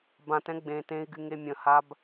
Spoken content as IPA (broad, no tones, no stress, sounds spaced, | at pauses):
b ã t ɛ̃ ɡ͡b ẽ t ẽ i̯ ɡ y ŋ e mʲ ə̃ h a b